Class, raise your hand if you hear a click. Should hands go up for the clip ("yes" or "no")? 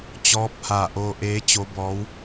no